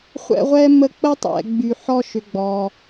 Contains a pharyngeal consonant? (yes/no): yes